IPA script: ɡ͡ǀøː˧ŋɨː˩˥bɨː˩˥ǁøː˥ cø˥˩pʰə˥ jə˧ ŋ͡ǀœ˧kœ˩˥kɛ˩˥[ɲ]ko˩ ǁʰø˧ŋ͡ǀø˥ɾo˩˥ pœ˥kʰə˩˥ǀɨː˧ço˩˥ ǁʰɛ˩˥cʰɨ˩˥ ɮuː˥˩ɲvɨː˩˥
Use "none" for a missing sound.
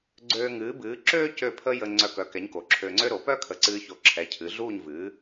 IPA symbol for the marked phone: ɲ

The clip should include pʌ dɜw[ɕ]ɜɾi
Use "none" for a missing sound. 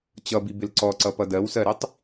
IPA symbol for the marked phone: s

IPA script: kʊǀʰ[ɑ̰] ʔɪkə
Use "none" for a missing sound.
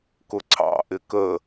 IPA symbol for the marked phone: ɑ̰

